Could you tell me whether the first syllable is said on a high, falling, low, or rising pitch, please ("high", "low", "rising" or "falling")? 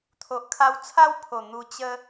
low